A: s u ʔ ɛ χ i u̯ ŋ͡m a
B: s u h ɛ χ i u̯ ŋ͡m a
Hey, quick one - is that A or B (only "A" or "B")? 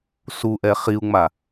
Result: A